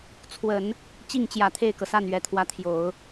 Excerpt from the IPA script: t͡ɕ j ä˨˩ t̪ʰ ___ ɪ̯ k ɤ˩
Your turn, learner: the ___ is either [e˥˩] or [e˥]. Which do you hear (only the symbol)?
e˥˩